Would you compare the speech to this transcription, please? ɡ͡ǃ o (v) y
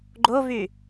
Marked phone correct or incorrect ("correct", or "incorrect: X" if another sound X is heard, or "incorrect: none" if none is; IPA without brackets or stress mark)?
correct